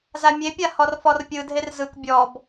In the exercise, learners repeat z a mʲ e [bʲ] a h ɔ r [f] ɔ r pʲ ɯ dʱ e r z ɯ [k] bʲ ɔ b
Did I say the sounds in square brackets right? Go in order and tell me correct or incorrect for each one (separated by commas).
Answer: incorrect, correct, correct